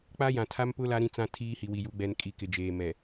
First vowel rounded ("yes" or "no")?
no